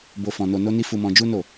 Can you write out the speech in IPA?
b o˧ f ɔ̃˧ n o˧ n o˦ n i˦ f u˧ m ɔ̃˧ d͡ʒ u˦ n o˦˨

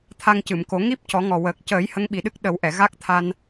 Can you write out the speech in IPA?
t̪ʰ a˧ ŋ c ɨ˨˩˨ m k o˨˩˦ ŋ i˦˥ p̚ c ɔ˨˩˦ ŋ ɔ˨˩ w əː˨˩ k̚ c əː˨˩˦ j h ə˧˥ ŋ ɓ i˨˩ ɗ ɨ˦˥ k̚ ɗ ə˨˩˦ w ʔ ɛ˨˩˨ ɣ a˦˥ k̚ t̪ʰ a˧ n

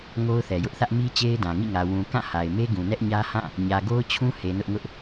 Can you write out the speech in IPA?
ŋ o˦ ʊ̯ θ ɛ˨ j ʊ˦ ʔ θ ä˦ ʔ m i˦ t͡ɕ e˦ ɪ̯ d ã˨ ŋ ḭ˦˨ ŋ ä˨ w ũ˨ k ã˦˨ h a˨ ɪ̯ m e˦ ɡ ũ˨ n ɛ˦ ʔ ɲ ä˦ h ã˦˨ | ɲ ä˨ ɡ o˦ ʊ̯ t͡ɕʰ ũ˦ h e˨ n ʊ˦ ʔ ŋ ʊ˦ ʔ

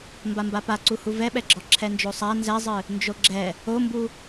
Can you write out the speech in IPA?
m b a m b a p a ǀ u h u v ɛ ɓ ɛ ɡ͡ǁ ɔ ǁʰ ɛ n d͡ʒ o sˤ a n z ɛ zˤ ɨ | n d͡ʒ o ɡ͡ǁ ɛ | o m b u

